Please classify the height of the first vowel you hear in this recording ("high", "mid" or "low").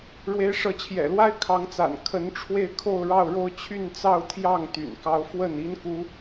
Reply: mid